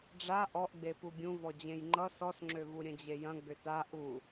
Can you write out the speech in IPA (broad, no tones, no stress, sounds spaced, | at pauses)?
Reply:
ɖ͡ʐ a ʔ ɔ ʔ ɡ͡b e p u ɡʲ ũ v ɔ d͡ʑ ẽ j ŋ͡ǃ ʌ s ɔ s ŋ͡ǁ ø v u ɾʲ ɐ̃ d͡ʑ e j ɐ̃ ɡ͡b ʏ t a ʔ u